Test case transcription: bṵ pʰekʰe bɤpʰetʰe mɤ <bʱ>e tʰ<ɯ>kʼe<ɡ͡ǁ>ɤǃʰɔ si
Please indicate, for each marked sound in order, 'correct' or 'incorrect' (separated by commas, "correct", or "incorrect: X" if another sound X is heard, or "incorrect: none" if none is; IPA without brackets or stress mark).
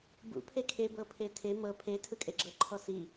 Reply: incorrect: pʰ, correct, correct